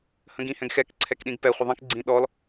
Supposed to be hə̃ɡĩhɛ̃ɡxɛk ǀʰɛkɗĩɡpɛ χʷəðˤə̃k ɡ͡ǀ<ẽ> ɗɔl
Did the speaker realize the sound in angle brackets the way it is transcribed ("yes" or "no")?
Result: no